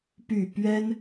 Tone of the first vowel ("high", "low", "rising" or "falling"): falling